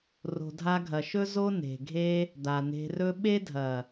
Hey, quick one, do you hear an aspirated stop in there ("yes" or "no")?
no